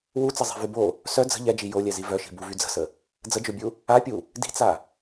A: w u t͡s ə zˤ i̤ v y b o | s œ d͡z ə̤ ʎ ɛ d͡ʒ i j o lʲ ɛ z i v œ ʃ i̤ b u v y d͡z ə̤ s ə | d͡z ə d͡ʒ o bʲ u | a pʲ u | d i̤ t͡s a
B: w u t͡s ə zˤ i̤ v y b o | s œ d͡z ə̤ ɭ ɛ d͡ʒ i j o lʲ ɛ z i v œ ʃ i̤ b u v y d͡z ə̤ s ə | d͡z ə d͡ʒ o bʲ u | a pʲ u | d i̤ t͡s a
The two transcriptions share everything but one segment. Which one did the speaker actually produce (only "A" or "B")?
A